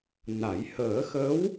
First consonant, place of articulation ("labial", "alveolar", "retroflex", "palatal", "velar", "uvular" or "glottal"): alveolar